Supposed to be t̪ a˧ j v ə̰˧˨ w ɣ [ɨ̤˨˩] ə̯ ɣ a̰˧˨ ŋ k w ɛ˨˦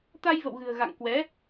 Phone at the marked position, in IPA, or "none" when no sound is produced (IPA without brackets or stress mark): ɨ̤˨˩